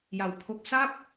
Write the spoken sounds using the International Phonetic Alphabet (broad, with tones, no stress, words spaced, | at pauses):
ja˨˩wpʰo˦˥k̚ sa˥˩p̚